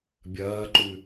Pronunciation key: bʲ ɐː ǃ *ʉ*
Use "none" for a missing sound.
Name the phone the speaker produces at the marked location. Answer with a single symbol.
ʉ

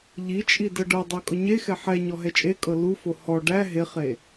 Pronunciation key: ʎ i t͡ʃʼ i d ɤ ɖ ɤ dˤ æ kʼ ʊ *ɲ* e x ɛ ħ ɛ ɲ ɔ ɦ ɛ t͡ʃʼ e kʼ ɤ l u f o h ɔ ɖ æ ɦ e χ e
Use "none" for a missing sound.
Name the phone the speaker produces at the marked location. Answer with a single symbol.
ɲ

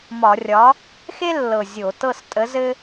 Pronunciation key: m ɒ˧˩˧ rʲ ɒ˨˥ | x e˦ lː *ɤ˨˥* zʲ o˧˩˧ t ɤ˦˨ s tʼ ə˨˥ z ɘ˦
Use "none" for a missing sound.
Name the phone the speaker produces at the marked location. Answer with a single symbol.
ɤ˨˩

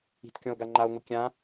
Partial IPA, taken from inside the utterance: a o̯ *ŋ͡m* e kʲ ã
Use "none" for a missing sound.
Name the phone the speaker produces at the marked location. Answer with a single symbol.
ŋʷ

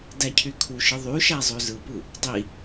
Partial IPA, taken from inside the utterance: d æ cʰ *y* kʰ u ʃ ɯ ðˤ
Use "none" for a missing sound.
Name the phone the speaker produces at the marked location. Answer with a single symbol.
y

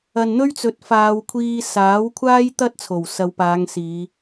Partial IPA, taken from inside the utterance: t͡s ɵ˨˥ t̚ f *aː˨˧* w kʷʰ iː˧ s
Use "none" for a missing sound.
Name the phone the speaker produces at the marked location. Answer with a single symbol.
aː˨˧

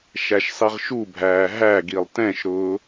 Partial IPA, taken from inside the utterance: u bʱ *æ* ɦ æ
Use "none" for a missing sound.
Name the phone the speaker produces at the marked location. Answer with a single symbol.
æː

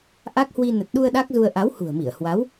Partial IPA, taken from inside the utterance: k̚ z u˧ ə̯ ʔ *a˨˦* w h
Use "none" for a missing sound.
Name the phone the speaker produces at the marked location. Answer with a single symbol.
a˨˦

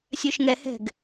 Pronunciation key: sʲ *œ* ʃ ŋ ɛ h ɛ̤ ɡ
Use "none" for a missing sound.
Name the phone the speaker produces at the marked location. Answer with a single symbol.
œ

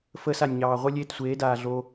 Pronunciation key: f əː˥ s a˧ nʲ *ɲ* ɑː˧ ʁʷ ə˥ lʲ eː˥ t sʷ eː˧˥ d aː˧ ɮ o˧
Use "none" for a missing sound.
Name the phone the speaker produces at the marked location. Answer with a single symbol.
ɲ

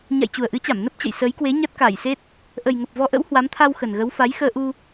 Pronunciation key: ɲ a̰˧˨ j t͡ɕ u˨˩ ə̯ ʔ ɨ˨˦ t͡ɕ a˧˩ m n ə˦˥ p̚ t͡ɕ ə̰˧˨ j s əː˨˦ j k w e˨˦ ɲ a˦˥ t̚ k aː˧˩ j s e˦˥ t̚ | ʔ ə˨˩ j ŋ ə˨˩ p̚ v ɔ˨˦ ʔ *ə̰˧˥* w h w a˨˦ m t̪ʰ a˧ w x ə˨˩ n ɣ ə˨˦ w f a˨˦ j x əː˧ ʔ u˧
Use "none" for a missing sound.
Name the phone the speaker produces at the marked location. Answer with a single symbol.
ə̰˧˥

